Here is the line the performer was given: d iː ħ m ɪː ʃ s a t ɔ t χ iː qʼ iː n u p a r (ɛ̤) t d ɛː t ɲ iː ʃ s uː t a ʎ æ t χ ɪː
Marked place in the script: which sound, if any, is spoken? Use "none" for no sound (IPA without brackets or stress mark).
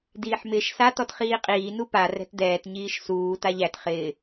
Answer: ɛ̤